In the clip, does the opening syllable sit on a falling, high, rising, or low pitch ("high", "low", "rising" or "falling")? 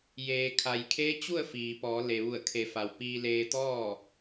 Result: low